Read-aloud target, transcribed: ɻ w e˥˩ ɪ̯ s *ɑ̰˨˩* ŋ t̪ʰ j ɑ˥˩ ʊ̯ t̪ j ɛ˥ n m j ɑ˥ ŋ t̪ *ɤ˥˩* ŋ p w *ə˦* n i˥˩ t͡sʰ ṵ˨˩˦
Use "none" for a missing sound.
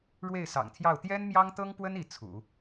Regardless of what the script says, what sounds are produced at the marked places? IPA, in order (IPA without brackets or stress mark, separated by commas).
ɑ̰˨˩, ɤ˥, ə˥